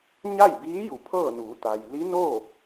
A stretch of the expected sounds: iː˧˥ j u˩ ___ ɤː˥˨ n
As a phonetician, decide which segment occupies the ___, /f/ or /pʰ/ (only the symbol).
pʰ